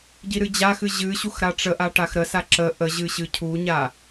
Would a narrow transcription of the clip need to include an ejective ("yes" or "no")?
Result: no